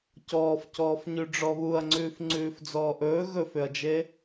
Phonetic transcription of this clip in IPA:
c ɔː f c ɔː f ɲ ʉ ɖ͡ʐ ɔ β u ɐ̯ ŋ͡ǀ ʉː f ŋ͡ǀ ʉː f d͡z ɔː ʔ ɵː ɣ ɵ f ʏ ɐ̯ d͡ʒ e

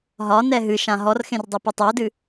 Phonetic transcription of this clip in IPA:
ɦ ɒ n ɛ ɦ ɨ ʃ ã ɦ ɔ r x ẽ r dˤ ɨ p ɨ tˤ ɛ o̯ d ɨ

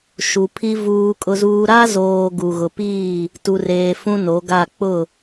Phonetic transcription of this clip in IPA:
ʃ u˨ pʰ i˦ v uː˦ kʼ ʊ˦ z uː˦ ɾ a˦ z oː˨ ɡ u˨ ɣ ʊ˨ p iː˦˨ | t u˨ r eː˨ f ũ˦ n o˨˦ ɡ a˦˨ k͡p ʊ˦˨

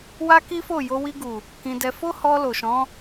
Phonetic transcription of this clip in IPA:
w a˦ k i˦ f o˦˨ j o˧ w i˧ ɡ u˨ | k ĩ˧ d ɛ˧ f o˦ h ɔ˧ l o˨ ʃ ɔ̃˨˦

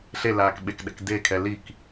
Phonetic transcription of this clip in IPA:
ɬ e l aː k ɓ e k ɗ ɛ̰ k d e kʰ ɛ l i k

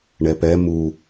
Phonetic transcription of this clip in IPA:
ɳ ɛ p ɛ m u

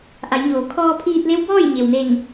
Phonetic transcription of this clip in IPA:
ʔ a˩˧ j ɲ oː˩˧ kʰ ɔː˧ pʰ iː˧ t̚ l e˧˥ w b ɔː˥˨ j ɲ e˩ w n e˧˩ ŋ

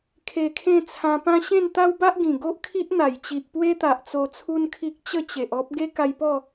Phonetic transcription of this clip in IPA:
kʰ e˧ kʰ ẽ˥˧ t͡sʰ ã˧ p ã˦ ɕ ẽ˥˧ n t̪ a˦ w b a˦ ʔ ɡ ĩ˨˩ ɡ o˦ ʔ kʰ i˦ ʔ n̪ a˨˩ j t͡ɕ i˨ ʔ p w e˦ t̪ a˨ ʔ t͡s o˧ t͡sʰ u˦ n kʰ i˦ k̚ t͡ɕ ə˥˧ t͡ɕ e˨ ʔ ɔ˦ p̚ ɡ e˦ k a˧ j p ɔ˥˧

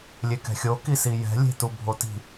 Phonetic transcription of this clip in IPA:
lʲ e k ɛ̤ xʲ o k i s i j ɛ̤ lʲ e̤ t u bʱ o t i̤

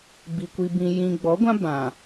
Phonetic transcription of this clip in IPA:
b i˨ kʷ i˨ b ĩ˨ j ĩ˨ ɡ͡b ɔ˨˦ ɡʷ ã˦ b ã˨

